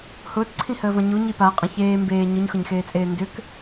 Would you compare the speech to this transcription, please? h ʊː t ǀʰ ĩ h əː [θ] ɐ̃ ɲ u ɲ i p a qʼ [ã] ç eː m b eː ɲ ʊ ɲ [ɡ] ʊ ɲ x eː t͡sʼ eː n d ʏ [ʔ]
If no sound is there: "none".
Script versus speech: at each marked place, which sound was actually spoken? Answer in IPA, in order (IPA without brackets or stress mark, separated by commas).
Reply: v, ɐ̃, x, k